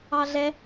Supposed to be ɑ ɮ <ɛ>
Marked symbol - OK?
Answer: yes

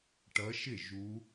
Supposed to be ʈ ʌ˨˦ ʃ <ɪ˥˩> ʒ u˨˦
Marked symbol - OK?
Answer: yes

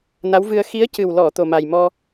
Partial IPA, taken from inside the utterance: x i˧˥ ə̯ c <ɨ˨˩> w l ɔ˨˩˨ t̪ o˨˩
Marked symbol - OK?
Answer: yes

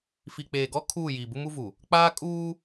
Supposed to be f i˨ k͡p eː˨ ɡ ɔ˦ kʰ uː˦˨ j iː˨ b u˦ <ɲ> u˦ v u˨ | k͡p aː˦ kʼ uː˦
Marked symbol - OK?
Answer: no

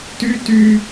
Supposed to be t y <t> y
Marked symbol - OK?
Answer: yes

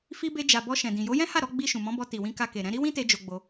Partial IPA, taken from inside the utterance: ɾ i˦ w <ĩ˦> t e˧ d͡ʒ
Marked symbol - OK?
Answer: yes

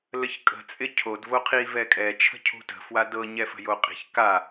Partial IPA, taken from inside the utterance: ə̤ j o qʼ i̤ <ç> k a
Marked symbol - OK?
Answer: yes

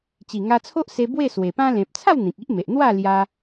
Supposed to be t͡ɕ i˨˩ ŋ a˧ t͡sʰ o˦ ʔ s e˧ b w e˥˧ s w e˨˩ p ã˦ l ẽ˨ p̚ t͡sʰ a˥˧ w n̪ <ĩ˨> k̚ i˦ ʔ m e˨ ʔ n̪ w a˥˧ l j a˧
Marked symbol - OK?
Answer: yes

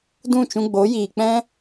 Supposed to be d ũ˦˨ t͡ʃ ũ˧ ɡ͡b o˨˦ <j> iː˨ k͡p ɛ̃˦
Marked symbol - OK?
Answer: yes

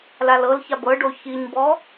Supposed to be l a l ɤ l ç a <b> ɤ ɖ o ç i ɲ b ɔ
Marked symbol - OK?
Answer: yes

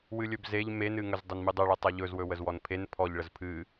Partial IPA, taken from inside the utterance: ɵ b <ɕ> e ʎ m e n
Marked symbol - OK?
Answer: no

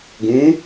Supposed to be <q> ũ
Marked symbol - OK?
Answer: no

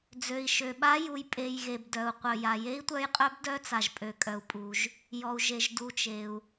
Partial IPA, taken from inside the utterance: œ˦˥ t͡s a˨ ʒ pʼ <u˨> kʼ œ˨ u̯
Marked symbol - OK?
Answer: no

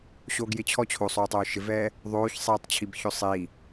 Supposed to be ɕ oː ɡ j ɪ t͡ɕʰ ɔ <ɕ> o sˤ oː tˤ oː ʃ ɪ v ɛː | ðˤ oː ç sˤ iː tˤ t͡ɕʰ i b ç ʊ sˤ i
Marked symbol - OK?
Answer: no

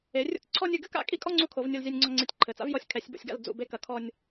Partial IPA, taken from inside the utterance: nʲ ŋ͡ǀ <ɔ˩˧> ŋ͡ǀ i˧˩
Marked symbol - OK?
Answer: no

